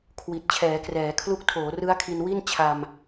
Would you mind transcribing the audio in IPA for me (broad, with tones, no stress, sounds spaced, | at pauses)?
kʰ w i˨˩ t̚ t͡ɕʰ ɛː˩˦ k r ɛː˩˦ kʰ l u˦˥ k̚ tʰ oː˩˦ r ɯ˦˥ a̯ kʰ i˧ n w i˥˩ n t͡ɕʰ a˧ m